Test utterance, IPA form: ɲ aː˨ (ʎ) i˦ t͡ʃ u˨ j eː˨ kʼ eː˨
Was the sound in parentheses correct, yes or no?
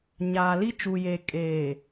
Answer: no